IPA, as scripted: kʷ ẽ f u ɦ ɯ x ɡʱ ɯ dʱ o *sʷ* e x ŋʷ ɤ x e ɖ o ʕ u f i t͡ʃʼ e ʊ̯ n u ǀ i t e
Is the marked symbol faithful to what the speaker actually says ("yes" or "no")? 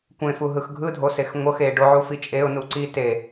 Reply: no